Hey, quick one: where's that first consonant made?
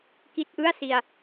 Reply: velum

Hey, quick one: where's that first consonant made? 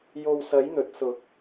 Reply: palate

